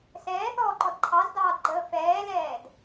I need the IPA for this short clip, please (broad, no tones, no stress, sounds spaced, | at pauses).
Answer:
s ɛː θ ɔː ǃ ɔ d ǃʰ ɑ z d ɑː d ɡ͡ǃ əː f ɛː l ɛː d